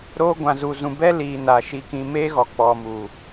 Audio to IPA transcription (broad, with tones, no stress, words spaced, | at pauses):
ɾoː˧ɡʷã˨zu˨ zũ˨bɛ˧liː˨ naː˨ ʃi˨kĩ˨ meː˧ɣɔ˨ k͡pɔ˨mu˨